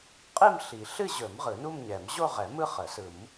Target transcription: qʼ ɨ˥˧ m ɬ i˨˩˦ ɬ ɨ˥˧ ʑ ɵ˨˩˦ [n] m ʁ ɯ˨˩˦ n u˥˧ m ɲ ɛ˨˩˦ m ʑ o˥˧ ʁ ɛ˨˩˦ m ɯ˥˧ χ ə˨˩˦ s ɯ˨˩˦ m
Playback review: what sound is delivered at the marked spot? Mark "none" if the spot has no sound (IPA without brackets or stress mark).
none